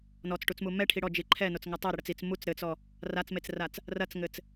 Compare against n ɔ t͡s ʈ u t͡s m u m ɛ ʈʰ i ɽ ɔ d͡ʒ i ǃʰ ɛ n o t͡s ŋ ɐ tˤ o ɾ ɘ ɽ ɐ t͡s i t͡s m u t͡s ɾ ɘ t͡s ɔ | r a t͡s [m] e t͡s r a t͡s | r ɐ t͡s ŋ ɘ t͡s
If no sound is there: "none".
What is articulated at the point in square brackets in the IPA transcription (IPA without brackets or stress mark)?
m